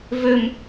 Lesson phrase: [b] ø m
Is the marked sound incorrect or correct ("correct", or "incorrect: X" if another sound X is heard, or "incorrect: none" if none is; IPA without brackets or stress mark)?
incorrect: v